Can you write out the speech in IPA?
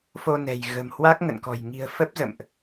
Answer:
fo˧nɛ̤˨˩j ɣə̤˨˩mhwa˦˥k̚ŋə̰˧˨nkɔ̤˨˩j ŋi̤˨˩ə̯ fə˦˥p̚zə̰˧˨mʔ

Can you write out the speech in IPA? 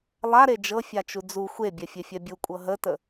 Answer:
lˠaɾe d͡ʒɤfʲat͡ʃu d͡zu xʷebʲɛfʲefʲɛ bʲukʷʼɤ ɦətə

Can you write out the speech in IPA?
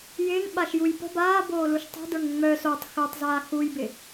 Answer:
jɪːŋɓaʃjuj pə̤ baːboːluʃ tˤə̤də˞ŋ ŋ͡mœ sotˤ xœtˤzaː xujbɪ

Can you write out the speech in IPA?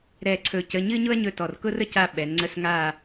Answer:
ɾɛ˦˨ǀʰɵ˦˨cə˧˥˧ ɲɨ˥ɲʊ˥ɐ̯ɲɵ˦˨ tɔ˨˩rkʊ˥rə˥ca˦˨ ɓɛ˩˧nŋ͡ǀə˧˥˧sŋa˦˨

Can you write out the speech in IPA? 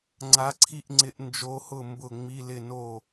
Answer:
ŋ͡ǀa˧˥ǀʰi˥˨ʔŋ͡ǀɪ˧˥ʔnd͡ʒo˧˥ hʊ˥˨ mbʊ˥˨ŋ͡mi˧˥˧lɪ˥˨no˥˨

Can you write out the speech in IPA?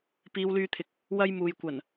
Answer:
piː˨˧wlyː˧t̪ʰɪ˨k̚ | wɐ˥jmuː˨j kʷɐ˨˩n

